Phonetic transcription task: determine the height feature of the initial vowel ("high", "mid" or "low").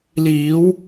high